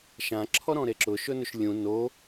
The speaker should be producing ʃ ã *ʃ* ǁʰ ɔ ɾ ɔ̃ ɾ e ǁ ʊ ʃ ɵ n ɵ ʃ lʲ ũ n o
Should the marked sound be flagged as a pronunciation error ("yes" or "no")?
yes